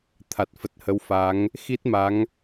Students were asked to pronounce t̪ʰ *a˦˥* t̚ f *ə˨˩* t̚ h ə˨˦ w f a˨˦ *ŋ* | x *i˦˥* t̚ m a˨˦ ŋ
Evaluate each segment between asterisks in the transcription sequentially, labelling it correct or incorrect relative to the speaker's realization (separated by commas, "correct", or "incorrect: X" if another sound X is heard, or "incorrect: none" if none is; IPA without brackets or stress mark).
incorrect: a˨˩, correct, correct, correct